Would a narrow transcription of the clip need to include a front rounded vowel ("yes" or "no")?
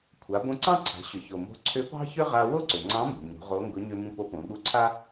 yes